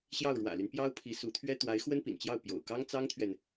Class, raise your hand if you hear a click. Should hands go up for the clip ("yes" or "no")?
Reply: no